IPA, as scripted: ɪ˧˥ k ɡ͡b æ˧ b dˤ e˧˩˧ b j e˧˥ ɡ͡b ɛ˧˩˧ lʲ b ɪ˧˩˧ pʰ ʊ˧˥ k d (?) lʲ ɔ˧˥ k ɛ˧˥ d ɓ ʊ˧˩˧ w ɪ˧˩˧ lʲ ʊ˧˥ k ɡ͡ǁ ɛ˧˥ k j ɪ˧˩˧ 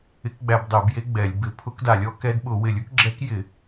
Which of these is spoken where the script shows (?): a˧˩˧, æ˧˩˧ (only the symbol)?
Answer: a˧˩˧